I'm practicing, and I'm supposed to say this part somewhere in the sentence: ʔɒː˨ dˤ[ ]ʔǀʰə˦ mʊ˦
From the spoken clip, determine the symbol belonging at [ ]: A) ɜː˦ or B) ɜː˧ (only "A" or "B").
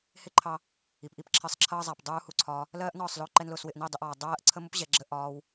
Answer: A